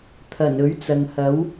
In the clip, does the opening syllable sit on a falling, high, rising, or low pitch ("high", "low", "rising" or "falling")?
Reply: low